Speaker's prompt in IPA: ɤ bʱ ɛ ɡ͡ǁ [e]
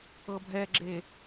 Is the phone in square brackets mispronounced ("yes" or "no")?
no